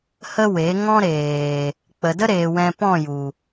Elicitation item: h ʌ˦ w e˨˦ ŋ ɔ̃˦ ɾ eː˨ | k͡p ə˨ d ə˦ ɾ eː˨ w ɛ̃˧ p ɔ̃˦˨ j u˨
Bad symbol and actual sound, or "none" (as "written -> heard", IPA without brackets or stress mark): ʌ˦ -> ə˦